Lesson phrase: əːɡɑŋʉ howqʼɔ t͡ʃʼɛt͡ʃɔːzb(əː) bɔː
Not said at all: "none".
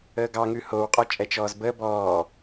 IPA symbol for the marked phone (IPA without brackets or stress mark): əː